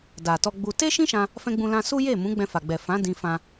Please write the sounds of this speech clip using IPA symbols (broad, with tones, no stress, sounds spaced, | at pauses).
d a˨ t ɔ˧ ɡ͡b u˧ t e˦ ʃ ĩ˦ ʃ ã˧ | f ɛ̃˧ ɡ͡b ũ˧ l ã˧ s u˦ j e˦˨ m ũ˨˦ ɡ͡b ɛ̃˧ f a˨ ɡ͡b ɛ˨ f ã˨˦ d ĩ˧ f ã˧